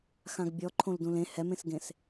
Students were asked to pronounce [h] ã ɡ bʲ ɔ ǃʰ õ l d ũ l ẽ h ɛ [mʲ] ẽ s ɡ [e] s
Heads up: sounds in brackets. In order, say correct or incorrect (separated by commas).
incorrect, incorrect, incorrect